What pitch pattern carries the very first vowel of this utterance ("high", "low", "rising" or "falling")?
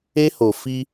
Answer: high